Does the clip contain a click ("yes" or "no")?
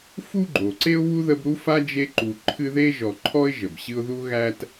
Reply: yes